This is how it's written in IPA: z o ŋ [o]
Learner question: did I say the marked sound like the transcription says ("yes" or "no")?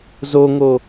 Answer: yes